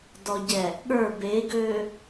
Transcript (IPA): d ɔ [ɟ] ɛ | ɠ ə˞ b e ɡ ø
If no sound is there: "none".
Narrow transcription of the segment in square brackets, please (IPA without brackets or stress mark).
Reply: ɟ